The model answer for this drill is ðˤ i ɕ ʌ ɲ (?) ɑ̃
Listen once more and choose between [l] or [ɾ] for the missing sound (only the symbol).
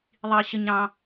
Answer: ɾ